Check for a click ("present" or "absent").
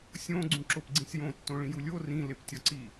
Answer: present